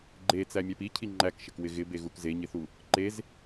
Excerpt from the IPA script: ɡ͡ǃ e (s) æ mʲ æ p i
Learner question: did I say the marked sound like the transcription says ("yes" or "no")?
no